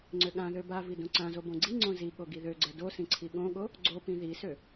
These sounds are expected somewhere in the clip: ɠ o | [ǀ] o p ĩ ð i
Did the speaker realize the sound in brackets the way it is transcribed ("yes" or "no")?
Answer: no